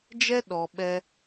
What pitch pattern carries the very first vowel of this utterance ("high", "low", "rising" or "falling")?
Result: high